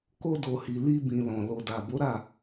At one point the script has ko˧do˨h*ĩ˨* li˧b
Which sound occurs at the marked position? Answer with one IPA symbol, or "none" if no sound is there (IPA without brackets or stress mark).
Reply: i˨